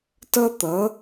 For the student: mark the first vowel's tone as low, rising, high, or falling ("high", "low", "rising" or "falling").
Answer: high